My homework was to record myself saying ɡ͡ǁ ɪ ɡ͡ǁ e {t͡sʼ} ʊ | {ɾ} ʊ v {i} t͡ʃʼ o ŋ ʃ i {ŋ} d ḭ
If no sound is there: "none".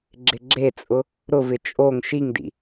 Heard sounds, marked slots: t͡sʼ, ɾ, ɪ, ŋ

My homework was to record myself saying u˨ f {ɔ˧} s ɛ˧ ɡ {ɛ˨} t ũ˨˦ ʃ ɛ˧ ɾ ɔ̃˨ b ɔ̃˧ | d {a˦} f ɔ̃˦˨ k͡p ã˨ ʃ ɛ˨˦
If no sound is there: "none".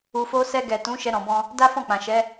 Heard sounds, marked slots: o˧, ɛ˨, a˦

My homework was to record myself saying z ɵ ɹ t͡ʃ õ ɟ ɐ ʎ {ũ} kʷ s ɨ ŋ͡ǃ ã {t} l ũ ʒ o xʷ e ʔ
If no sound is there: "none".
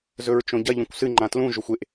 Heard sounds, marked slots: õ, t

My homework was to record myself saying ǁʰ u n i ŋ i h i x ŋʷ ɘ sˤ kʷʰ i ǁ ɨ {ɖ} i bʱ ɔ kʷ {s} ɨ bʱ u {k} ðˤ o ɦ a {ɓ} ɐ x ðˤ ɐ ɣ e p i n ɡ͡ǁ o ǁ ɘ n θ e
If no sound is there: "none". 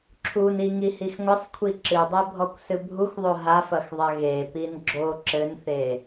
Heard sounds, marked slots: dˤ, s, x, f

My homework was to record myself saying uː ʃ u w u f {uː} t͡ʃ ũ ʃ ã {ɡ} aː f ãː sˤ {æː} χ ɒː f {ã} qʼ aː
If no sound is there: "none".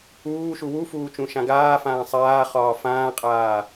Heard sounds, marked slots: uː, ɡ, aː, ãː

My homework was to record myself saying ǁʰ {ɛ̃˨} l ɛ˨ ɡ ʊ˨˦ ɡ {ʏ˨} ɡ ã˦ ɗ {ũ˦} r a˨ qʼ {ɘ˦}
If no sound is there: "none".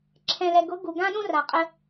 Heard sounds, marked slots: ɛ̃˨, u˨, ũ˦, ɘ˦

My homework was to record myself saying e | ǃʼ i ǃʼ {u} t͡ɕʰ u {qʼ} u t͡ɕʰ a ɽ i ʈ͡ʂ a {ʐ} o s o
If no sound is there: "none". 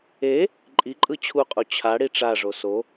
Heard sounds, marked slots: ɯ, qʼ, ʐ

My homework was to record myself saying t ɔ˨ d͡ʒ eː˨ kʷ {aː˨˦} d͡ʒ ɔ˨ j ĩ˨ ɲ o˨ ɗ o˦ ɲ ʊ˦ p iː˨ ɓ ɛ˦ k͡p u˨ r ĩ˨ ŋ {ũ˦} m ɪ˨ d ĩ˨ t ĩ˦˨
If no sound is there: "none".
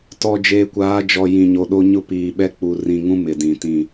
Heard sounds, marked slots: aː˨˦, ũ˦

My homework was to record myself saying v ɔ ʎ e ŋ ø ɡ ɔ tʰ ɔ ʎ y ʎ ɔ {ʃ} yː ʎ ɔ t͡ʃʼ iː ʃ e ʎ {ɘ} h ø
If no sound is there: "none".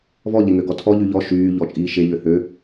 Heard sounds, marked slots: ʃ, ø

